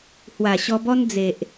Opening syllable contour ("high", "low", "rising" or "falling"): low